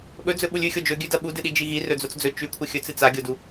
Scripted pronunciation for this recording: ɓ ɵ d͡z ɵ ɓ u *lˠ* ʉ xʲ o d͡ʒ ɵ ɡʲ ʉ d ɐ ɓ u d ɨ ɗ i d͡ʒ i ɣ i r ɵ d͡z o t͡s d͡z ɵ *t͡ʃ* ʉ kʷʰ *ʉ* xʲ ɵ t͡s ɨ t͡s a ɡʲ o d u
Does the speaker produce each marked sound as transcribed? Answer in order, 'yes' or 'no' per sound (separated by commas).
no, yes, no